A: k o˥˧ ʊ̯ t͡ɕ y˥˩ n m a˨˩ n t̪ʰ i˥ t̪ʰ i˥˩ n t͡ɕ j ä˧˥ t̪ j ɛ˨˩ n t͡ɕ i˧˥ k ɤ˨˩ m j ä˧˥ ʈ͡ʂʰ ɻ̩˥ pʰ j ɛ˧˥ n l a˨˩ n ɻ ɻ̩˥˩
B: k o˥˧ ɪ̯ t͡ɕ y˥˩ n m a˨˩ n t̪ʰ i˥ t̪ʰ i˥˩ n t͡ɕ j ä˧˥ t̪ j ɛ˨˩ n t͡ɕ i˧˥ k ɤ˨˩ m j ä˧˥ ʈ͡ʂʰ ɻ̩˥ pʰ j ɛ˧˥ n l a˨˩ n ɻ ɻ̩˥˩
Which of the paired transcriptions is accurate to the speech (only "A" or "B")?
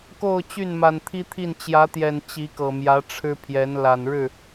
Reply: A